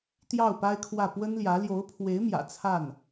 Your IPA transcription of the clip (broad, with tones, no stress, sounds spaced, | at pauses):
t̪ j ɑ˥˩ ʊ̯ p a˥ ɪ̯ kʰ w ä˥˩ p w ə˥ n l j ä˧˥ l j o˧˥ ʊ̯ pʰ w e˧˥ ɪ̯ m j ä̰˨˩ t͡sʰ a˥˩ n